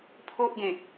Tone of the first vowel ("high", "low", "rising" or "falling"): high